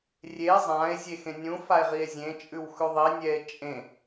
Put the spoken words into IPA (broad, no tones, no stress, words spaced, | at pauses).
rʲe zˤãe̯ zʲexẽnʲũ fae̯ʁie̯zʲẽ t͡ʃʼʉwxʉðˤi nʲɛe̯t͡ʃʼẽ